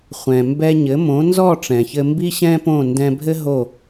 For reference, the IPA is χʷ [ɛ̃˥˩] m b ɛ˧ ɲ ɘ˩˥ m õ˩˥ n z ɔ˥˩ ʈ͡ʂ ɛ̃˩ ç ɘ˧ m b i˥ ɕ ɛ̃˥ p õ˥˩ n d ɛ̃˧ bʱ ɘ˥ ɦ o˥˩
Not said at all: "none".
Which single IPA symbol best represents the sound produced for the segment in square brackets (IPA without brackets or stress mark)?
ɛ̃˩